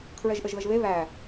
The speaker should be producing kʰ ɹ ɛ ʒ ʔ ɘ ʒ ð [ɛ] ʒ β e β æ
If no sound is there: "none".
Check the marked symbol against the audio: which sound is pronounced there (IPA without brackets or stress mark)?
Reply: ə